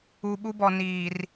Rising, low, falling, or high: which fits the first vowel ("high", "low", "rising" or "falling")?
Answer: low